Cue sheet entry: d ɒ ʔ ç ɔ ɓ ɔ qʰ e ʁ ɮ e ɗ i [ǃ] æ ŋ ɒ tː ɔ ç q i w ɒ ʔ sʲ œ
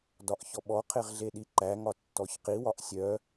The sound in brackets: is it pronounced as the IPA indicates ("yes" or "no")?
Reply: yes